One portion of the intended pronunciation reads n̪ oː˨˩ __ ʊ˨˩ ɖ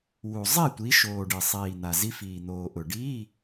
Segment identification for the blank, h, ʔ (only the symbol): ʔ